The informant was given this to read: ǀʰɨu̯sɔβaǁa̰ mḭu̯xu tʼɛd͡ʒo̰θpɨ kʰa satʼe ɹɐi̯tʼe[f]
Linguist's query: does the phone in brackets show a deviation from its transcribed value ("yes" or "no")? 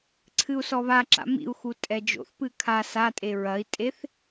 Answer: yes